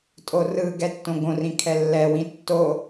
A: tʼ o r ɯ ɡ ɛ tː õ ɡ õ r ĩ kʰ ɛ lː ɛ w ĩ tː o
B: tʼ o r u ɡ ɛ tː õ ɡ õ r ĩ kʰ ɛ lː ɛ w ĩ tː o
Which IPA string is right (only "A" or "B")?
A